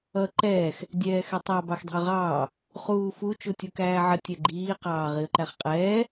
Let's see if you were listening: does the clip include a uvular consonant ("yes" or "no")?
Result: yes